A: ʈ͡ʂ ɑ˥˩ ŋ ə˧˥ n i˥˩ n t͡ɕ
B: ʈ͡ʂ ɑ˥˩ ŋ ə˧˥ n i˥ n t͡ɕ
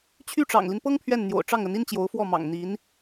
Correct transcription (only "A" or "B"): B